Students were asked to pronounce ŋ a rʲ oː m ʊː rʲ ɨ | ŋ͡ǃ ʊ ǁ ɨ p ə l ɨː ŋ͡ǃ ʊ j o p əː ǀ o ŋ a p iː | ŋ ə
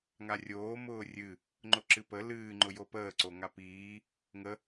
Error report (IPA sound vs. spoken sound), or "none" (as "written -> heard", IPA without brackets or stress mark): none